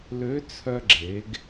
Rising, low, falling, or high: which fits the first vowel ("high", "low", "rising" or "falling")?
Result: rising